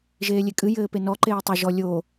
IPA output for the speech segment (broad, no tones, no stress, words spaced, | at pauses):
ʒeːlʲekʼɨ jɘːpenɔ ǃeːtˤo ʒɔ lʲo